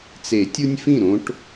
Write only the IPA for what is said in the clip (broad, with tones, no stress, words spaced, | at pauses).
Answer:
t͡se˨˩˦tʲu˦nʲfĩ˥˩ ɾõ˦ʈ